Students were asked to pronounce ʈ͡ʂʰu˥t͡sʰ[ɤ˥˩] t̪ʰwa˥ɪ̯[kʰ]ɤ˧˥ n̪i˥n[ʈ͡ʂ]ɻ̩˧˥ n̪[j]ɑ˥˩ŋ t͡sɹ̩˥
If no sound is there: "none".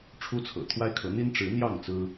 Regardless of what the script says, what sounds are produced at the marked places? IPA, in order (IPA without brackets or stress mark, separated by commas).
ɤ̰˨˩, kʰ, ʈ͡ʂ, j